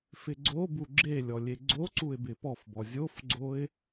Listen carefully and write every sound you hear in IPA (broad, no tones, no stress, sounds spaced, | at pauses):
f ɪ ɡ͡ǀ o b u ɡ͡ǁ e lʲ ɔ lʲ e ɡ͡ǀ o ǀ u ɪ̯ b ɪ p ɔ f b ɔ zʲ o f ɡ͡ǀ o ɪ̯